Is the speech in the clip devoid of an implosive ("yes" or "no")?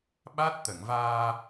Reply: no